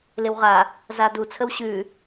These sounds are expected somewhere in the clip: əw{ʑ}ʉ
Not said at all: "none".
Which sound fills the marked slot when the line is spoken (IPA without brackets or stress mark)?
ɕ